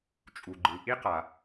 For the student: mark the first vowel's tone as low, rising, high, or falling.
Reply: low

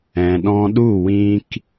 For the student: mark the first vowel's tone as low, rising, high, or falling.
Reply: low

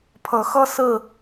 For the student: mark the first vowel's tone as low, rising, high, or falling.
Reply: rising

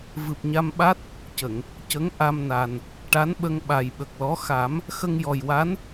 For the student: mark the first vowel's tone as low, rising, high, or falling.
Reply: low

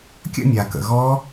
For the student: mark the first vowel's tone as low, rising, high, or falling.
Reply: falling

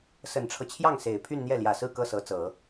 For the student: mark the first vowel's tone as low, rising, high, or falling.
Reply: low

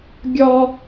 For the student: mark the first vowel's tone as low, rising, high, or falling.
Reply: high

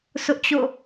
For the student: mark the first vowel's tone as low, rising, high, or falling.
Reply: high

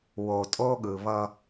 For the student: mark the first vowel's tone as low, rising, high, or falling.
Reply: low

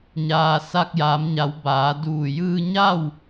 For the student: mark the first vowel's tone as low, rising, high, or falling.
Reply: low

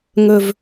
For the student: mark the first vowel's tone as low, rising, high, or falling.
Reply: low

